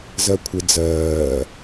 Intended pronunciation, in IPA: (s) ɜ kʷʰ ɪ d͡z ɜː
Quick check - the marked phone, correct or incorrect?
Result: incorrect